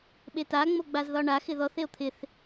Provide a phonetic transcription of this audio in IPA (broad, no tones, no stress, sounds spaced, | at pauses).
ɓ e t a ŋ͡m o ɡ͡b a z ð ɒ ɳ a x ɪ ð ɔ θ e o̯ t̪ʰ ɪ θ